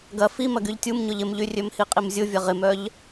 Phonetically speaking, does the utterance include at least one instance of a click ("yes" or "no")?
no